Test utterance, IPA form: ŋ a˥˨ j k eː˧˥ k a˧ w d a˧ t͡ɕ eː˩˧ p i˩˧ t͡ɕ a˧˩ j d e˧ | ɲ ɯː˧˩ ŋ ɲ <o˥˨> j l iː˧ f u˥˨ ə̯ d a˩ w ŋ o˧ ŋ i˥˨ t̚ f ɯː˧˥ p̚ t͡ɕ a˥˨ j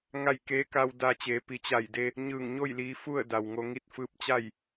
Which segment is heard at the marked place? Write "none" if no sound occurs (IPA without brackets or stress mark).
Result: o˥˨